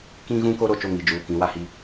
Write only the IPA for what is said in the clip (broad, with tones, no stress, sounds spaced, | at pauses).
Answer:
k ĩ˦ ɣ ũ˦ k o˦ ɾ o˨ t͡ʃ o˦˨ ŋ i˨ d͡ʒ uː˨ k ĩ˨˦ w a˦ h i˦